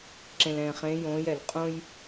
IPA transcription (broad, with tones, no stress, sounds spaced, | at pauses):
ǁ ẽ˧ l ɛ̃ː˧ χ ẽː˧˥ j õː˧˥ j ɛ˩˧ l qʼ õ˥ j